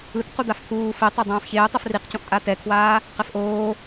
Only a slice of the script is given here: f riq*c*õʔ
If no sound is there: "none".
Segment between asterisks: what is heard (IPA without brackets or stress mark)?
c